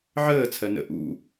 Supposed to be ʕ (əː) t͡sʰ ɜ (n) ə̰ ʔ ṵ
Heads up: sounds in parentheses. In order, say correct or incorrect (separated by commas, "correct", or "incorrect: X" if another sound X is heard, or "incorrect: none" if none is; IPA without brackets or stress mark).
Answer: correct, correct